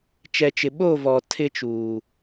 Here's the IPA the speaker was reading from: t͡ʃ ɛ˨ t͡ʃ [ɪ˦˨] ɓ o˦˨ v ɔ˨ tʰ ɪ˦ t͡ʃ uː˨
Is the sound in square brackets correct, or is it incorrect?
incorrect